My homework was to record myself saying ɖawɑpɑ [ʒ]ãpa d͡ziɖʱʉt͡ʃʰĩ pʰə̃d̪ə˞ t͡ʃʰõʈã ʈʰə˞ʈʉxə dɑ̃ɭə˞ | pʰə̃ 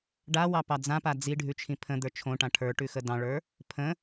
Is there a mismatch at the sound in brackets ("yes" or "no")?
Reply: yes